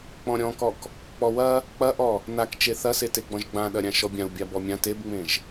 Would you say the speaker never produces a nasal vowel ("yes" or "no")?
no